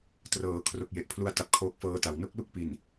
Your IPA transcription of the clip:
t r ɤː˩˦ kʰ r o˨˩ k̚ j e˨˩ ʔ pʰ l u˧ a̯ t a˨˩ p̚ kʰ oː˦˥ k̚ f ɤː˦˥ t a˩˦ w n o˦˥ k̚ l u˥˩ k̚ p i˨˩ n

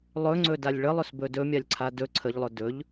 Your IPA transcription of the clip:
lˠ ɵ ŋ͡ǀ ɵ d a lʲ ɭ ə lˠ ɵ s b ɵ d ɵ mʲ a lʲ ǀʰ a d ɵ ǀʰ ə ʎ lˠ ɵ d ɵ ʎ

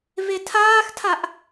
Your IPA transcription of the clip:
v e tʰ aː x tʰ a ʔ

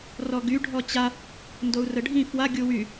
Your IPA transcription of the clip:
r ɔ ɡ y ɖʱ ɔ t͡ɕ a | n d o u̯ r ə ɖʱ ĩ f w a ɡʲ u w y

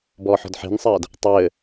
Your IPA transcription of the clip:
b ɔː ħ ɔ̤ d ħ e̤ n sˤ ɜː d | tˤ ɘː

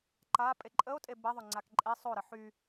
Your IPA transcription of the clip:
ǃ a pʼ e ǃʼ ə o̯ tʼ e b ə ðˤ o ŋ͡ǀ a k ǃʼ e sˤ o ɾ ə ħ y

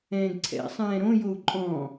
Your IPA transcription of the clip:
ɛ̃ː ɡ ǀʰ ɛ̰ sˤ ɛ̃ː ɾ õ j o u̯ ǃʼ ɔ̃

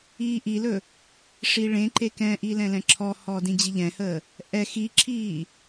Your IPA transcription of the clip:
iː ʔ i l ɵ | ʂ i ɭ ẽ ǃ e k ɛ̃ ʔ i l ɛ̃ l ɛ̃ ǁʰ ɔ h ɔ d ĩ d͡ʑ i ʎ ɛ̃ h əː | ʔ ɛ x i ǁʰ iː

